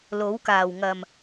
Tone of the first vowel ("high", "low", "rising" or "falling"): rising